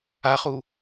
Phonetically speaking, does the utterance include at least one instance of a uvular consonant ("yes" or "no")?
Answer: yes